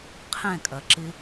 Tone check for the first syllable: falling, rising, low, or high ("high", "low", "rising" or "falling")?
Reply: falling